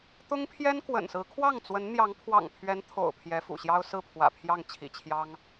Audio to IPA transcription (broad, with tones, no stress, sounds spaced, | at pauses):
t̪ ʊ˥ ŋ pʰ j ɛ˥ n k w ə̰˨˩ n s ɹ̩˧˥ kʰ w ɑ˥˩ ŋ t͡s w ə˧˥ n n̪ j ɑ˧˥ ŋ pʰ w ɑ̰˨˩ ŋ pʰ ɥ ɛ˧˥ n t̪ʰ o̰˨˩ ʊ̯ pʰ j ɛ˧˥ f ṵ˨˩ ɕ j ɑ˥ ʊ̯ s ɹ̩˥˩ pʰ w ä̰˨˩ pʰ j ɑ˥˩ ŋ t͡ɕʰ ḭ˨˩ t͡ɕʰ j ɑ˥ ŋ